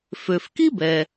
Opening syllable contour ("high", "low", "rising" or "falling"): low